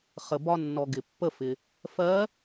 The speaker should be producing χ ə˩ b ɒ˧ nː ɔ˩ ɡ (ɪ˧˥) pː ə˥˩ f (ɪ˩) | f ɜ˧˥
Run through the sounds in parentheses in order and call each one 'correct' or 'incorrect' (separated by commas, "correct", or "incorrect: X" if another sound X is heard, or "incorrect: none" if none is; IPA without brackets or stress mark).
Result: incorrect: ɪ˩, correct